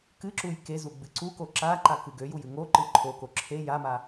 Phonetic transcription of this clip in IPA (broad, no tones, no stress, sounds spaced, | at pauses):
k ɨ ǁ u j k e z u ɡ͡b ɨ ǀ u k o ǁ a ǃ a k ɨ ɡ ø j u j ɨ ŋ o ǃ ɨ ǃʰ o k o ǁʰ e j a m a